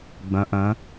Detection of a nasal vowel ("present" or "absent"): present